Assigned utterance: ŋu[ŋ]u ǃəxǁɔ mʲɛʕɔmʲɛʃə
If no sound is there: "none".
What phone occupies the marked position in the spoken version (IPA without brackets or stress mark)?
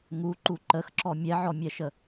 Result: ǃ